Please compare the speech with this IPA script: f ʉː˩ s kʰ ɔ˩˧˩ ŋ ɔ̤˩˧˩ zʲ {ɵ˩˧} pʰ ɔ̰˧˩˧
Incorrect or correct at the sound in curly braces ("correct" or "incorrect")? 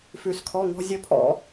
incorrect